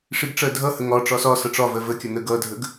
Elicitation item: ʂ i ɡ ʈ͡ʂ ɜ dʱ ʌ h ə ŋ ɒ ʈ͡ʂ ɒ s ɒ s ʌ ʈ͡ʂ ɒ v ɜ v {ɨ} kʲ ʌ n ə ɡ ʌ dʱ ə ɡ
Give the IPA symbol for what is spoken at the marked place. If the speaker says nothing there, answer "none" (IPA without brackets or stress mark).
ə